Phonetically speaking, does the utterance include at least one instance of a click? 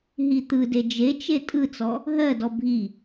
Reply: no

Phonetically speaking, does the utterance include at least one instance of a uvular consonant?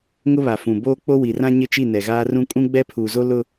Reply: no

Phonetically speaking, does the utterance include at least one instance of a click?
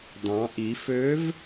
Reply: no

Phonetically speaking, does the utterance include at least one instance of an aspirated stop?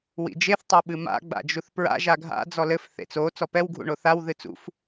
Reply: no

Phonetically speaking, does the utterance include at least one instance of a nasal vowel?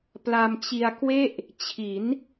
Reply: no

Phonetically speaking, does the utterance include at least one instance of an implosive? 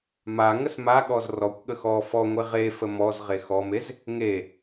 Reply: yes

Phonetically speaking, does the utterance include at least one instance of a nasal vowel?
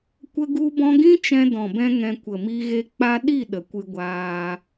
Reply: yes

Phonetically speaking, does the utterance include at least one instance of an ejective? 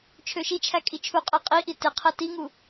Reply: yes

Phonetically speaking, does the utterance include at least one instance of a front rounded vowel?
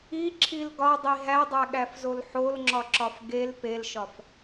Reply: no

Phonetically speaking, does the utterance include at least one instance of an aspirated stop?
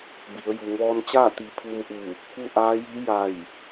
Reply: yes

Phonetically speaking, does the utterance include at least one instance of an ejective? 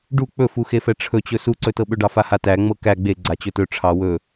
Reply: no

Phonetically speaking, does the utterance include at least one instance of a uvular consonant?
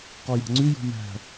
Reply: yes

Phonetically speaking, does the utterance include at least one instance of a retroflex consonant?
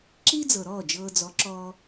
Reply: no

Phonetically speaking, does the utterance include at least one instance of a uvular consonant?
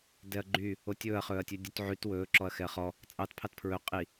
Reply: yes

